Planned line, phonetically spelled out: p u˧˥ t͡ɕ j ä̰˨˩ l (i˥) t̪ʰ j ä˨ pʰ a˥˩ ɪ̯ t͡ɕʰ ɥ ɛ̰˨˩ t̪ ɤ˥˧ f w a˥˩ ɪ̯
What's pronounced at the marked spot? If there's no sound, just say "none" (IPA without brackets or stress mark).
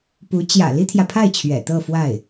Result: i˥